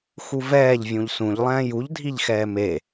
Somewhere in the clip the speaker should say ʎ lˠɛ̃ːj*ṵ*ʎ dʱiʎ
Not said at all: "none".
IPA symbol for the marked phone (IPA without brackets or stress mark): u